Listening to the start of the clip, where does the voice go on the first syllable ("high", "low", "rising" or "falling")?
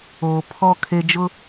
low